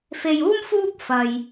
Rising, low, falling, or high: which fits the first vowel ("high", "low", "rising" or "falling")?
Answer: low